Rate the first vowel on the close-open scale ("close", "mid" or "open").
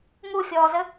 close